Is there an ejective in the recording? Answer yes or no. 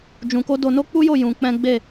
no